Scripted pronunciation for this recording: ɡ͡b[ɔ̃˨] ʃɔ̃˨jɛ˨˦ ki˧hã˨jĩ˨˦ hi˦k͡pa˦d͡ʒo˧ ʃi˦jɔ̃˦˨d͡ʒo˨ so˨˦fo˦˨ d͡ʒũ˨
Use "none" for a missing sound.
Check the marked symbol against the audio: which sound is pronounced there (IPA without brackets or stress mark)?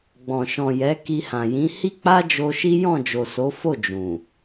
ɔ̃˨